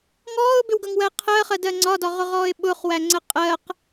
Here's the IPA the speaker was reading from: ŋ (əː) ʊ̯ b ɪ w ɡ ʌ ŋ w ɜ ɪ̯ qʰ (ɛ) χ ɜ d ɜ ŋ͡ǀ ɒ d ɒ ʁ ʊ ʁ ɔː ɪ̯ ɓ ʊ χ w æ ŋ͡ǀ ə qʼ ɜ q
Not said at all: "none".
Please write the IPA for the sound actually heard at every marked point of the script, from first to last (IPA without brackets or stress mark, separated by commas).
ɔː, ɜ